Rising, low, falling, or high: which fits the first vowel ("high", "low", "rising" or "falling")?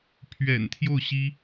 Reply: low